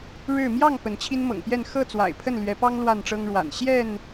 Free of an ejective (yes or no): yes